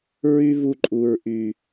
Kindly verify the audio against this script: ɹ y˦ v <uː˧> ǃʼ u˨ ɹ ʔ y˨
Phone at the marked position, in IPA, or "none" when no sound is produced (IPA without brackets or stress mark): u˧